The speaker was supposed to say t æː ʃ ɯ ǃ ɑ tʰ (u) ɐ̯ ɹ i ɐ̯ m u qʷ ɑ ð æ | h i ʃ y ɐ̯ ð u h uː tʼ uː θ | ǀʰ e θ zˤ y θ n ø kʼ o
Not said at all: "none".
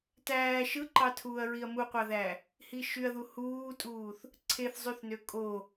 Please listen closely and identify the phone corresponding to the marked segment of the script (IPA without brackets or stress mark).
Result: uː